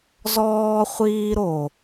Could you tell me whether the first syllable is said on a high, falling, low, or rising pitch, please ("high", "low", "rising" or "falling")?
high